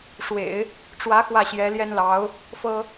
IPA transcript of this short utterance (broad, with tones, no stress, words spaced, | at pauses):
ʂwḛ˨˩˦ɪ̯ | ʈ͡ʂwä˧˥ xwä˥˩ɕjɛ˧˥ljɛ˥nlɑ˧˥ʊ̯ | fɤ˥